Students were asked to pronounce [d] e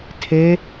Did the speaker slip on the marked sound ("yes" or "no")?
yes